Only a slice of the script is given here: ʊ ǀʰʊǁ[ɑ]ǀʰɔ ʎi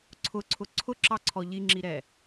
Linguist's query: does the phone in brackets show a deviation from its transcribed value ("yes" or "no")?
no